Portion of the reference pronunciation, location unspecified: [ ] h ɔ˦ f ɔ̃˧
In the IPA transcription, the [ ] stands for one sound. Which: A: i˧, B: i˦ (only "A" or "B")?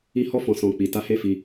B